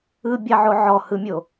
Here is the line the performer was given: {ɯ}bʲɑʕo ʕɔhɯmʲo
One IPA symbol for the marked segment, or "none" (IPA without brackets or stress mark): ɯ